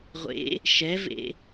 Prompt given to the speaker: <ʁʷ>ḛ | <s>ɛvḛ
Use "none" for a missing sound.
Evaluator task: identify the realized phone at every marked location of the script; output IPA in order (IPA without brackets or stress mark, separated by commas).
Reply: ʁʷ, ʃ